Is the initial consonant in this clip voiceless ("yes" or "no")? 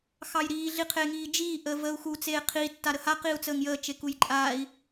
yes